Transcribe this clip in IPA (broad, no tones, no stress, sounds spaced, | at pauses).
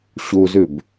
ɕ u z ʉ b